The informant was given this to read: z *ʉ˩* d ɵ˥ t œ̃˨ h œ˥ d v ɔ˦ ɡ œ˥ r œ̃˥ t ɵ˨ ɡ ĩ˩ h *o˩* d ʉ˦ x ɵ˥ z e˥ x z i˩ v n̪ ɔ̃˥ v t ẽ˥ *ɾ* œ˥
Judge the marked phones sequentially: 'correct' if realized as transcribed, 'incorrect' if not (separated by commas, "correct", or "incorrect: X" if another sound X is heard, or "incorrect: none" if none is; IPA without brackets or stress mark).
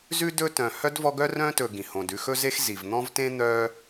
incorrect: ʉ˥, incorrect: õ˩, incorrect: n̪